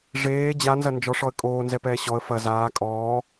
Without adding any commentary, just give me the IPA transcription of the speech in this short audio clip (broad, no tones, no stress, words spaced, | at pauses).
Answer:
ʐeː d͡ʑanzɐ nd͡ʒɔʂɔə̯ kʼoːnzɛpɛː ɕɔə̯ fɐ zaː kʼɔː